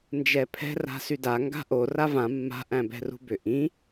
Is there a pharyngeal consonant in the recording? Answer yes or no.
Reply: no